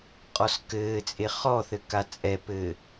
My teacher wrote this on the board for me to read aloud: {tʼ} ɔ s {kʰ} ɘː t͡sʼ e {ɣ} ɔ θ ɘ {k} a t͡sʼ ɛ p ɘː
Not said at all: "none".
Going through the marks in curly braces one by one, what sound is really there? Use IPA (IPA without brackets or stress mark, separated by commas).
qʼ, k, χ, k